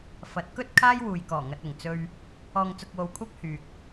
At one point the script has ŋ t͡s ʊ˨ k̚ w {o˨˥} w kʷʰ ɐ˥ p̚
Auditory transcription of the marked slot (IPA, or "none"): o˨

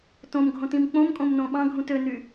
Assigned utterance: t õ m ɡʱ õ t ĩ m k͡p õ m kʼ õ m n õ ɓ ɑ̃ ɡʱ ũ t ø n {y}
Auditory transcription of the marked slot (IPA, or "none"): y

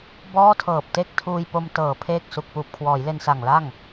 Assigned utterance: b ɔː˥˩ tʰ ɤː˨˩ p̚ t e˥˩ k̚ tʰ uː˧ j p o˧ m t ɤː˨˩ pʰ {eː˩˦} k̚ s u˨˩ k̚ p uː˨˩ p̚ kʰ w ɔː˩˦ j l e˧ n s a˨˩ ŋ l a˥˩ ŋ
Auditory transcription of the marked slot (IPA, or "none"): eː˥˩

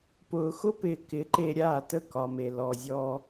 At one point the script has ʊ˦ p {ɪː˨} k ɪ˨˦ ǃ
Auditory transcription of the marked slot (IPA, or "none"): ɪː˨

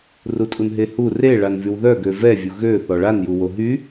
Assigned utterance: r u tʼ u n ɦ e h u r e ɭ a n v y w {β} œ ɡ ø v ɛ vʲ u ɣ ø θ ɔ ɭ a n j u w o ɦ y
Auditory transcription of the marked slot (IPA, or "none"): ð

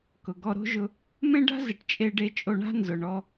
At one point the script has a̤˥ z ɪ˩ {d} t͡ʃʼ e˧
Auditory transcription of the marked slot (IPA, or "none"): ʈ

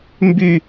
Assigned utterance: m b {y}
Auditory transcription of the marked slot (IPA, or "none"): y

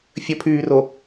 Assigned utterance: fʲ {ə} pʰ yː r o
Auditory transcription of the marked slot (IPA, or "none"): ə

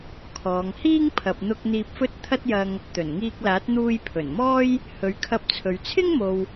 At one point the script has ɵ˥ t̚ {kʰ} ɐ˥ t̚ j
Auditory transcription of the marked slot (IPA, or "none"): t̪ʰ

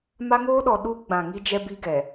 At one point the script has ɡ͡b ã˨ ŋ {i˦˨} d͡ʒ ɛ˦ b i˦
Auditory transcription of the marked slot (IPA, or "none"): i˦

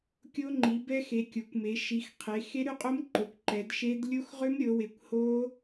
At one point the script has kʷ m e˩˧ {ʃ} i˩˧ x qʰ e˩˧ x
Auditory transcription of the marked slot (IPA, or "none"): ʃ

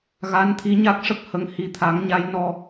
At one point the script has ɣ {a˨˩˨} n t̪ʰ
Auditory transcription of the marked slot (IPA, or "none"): a˧˥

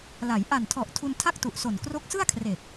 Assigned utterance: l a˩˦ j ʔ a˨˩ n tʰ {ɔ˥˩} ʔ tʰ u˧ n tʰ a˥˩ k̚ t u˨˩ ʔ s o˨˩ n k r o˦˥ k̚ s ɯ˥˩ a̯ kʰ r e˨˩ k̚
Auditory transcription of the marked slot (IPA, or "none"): ɔ˨˩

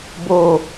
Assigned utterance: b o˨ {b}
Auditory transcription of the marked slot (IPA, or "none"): none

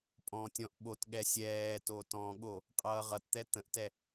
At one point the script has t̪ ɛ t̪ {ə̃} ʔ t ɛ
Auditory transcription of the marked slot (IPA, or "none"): ə̃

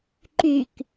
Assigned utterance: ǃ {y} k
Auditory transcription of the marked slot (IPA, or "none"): y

